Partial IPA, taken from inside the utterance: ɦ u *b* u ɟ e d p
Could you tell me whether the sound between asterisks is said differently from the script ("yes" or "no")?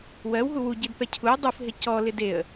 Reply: yes